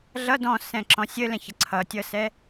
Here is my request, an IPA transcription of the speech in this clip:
ɮ ʌ d ɔ̃ s ɛ̃ ǁ ɔ̃ sʲ ə l ɛ̃ ç ə ǀʰ ʌ tʲ ʌ s ɛ

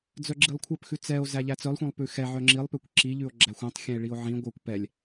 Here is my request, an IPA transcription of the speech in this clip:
d͡z œ ɡ͡ǁ i lˠ kʷʰ œ p x ʉ t͡s ɛ o̯ z æ ʎ æ t͡s œ lˠ xʷ ɛ̃ lˠ p ʉ x ɛ ʕ œ ŋ͡ǁ i lˠ p ø kʷ ǁ i ʎ ʉ o̯ ɡ͡ǁ æ xʷ œ̃ tˤ xʲ ɛ̃ e̯ ɭ i o̯ ʕ ĩ ɡʷ œ kʷ p ɛ lʲ

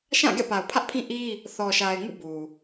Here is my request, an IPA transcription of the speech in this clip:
ʃ ã˦˨ ɡ ɛ̰˦˨ p a˨ ʊ̯ pʰ ä˦ ʔ pʰ ĩ˦ ʔ i˦ | θ ɔ˨ ʃ a˨ ɪ̯ ŋ ṵ˦˨ b u˨

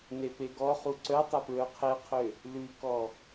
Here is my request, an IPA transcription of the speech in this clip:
n e p e ɡ ɔ χ u ǀ œ tˤ ɐ p ɹ œ qʰ e qʰ ø | l ʉ k ɔ

